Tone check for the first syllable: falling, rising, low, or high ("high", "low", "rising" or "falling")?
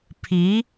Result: rising